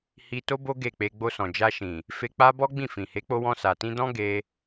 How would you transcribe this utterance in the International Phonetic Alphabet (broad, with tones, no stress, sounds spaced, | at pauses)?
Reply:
h i˧ t o˦ b o˦ ɡ e˦˨ k͡p e˧ ɡ͡b o˧ s ɔ̃˨ d͡ʒ a˧ ʃ ĩ˨ | f e˧ k͡p a˦ b ɔ˦ ɡ͡b ĩ˦˨ f ĩ˨ h e˨˦ k͡p o˧ w ɔ̃˧ s a˨ t ĩ˧ d ɔ̃˦ ɡ e˧